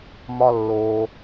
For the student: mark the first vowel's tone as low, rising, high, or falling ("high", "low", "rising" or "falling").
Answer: high